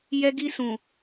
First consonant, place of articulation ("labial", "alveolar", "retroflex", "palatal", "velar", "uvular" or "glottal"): palatal